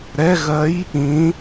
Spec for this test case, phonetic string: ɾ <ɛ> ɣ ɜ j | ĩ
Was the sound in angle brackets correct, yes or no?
yes